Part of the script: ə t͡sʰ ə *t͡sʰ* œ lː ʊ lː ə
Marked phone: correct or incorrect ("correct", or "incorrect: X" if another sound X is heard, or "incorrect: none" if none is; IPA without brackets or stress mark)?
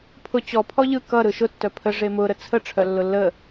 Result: incorrect: ʈ͡ʂʰ